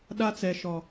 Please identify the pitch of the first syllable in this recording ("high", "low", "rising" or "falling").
high